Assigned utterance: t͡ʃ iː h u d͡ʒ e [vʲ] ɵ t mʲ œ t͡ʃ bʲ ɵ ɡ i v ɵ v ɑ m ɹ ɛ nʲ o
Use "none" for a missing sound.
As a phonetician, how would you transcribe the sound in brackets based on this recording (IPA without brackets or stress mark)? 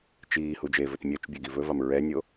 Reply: v